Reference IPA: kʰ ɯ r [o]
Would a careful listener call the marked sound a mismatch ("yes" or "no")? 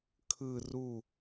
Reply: yes